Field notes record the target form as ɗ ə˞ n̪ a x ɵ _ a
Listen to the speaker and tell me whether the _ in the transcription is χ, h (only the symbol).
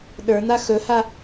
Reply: h